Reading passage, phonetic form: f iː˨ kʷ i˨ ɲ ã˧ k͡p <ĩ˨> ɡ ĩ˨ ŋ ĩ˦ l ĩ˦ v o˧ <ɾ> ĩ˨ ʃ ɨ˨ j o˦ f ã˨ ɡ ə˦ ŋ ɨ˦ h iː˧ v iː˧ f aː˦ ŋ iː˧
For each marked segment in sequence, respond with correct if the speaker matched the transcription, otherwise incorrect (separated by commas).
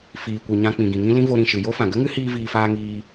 correct, correct